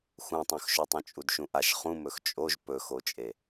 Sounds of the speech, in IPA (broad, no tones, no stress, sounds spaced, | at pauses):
x ũ tˤ õ x ʃ ɵ tˤ ũ t͡ʃʼ u d ʃ ũ ʔ a ʃ χ ũ m ɵ x t͡ʃʼ o ʒ p ɵ x o t͡ʃʼ e